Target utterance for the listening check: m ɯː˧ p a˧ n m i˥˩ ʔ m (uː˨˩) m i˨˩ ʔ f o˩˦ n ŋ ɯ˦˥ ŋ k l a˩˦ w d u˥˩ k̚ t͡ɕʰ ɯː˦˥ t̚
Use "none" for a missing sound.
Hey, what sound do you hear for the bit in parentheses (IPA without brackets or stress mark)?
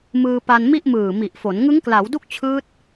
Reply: ɯː˨˩